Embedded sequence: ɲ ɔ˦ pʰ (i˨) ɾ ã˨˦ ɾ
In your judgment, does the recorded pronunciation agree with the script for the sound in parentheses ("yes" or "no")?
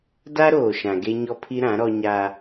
no